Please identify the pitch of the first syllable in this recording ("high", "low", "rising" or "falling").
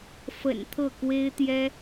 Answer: low